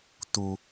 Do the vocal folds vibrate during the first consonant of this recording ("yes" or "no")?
no